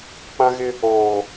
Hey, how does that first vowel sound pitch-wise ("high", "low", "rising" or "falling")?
high